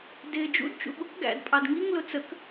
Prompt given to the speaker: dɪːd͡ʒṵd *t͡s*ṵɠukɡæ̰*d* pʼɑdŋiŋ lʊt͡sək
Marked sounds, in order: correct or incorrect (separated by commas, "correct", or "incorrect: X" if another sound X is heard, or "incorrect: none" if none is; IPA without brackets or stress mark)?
incorrect: t͡ʃ, correct